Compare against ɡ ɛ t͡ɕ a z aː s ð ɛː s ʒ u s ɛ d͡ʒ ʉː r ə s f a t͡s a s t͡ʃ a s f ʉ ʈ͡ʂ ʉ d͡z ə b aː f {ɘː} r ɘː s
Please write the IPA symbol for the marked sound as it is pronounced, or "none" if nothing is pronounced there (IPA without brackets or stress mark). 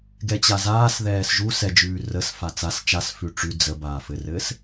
ɘ